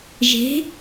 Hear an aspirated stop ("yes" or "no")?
no